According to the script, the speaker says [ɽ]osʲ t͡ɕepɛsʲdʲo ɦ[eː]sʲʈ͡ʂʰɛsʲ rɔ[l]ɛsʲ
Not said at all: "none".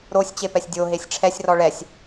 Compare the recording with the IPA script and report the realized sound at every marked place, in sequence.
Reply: ɾ, e, ɭ

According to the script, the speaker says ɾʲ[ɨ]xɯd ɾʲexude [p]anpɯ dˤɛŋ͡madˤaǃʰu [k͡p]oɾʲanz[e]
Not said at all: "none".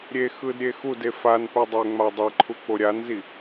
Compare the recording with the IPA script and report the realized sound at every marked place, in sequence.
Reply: e, f, k͡p, i

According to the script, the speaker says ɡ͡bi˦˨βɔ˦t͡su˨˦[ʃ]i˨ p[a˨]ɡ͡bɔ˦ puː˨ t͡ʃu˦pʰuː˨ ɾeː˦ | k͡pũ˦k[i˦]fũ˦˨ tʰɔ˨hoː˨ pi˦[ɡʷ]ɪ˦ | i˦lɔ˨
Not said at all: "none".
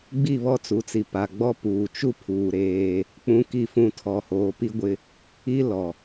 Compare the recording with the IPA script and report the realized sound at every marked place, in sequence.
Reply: t͡s, a˨, i˦˨, ɡʷ

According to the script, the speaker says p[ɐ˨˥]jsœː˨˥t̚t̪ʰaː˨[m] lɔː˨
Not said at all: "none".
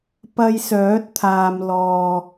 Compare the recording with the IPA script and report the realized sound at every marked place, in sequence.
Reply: ɐ˧, m

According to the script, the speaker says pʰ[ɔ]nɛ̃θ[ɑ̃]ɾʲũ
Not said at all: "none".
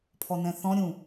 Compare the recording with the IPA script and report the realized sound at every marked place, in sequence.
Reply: ɔ, ɔ̃

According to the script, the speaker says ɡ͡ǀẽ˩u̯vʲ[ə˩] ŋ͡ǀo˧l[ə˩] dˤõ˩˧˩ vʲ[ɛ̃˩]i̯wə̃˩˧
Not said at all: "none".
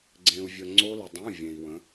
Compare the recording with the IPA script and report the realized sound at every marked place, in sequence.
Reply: ə˩, ə˩, ẽ˩

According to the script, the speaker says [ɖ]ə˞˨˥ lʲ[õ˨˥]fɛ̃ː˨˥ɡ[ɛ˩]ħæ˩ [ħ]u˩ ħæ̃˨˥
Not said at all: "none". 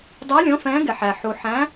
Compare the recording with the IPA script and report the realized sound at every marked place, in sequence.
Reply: dˤ, õ˨˥, ɛ˩, ħ

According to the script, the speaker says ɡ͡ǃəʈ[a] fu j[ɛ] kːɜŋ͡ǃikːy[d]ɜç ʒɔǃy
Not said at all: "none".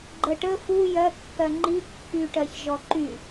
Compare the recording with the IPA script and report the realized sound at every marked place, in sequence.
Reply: ə, ɜ, ʈ

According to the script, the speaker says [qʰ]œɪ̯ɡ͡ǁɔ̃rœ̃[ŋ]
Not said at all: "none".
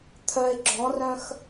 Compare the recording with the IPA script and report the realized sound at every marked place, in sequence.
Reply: t̪ʰ, x

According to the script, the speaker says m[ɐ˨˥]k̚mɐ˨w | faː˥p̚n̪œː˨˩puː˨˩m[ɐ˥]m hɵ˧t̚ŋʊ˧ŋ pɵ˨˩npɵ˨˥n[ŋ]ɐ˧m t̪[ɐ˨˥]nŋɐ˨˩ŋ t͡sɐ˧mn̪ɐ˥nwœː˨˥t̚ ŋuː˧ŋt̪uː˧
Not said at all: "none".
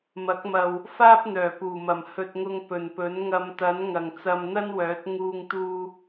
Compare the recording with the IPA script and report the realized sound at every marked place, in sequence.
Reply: ɐ˨˥, ɐ˨˩, ŋ, ɐ˨˥

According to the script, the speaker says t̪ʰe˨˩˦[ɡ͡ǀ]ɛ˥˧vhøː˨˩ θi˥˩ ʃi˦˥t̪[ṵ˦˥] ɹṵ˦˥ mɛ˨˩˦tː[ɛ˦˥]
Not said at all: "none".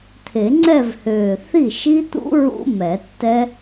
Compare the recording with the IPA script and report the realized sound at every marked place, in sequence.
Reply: ŋ͡ǀ, ṵ˦˥, ɛ˦˥

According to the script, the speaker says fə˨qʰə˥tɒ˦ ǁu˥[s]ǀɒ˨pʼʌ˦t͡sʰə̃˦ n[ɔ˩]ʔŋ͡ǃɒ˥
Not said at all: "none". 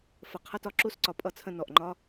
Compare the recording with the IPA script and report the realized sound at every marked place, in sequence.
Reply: s, ɔ˩

